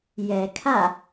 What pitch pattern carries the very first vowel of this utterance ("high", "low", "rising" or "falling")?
low